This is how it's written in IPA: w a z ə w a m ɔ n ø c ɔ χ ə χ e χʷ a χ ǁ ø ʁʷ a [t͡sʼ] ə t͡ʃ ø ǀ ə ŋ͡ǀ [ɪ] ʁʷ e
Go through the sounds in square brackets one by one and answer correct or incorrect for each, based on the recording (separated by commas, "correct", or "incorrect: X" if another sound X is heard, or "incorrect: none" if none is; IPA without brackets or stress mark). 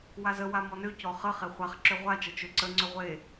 incorrect: t͡ʃ, incorrect: ʏ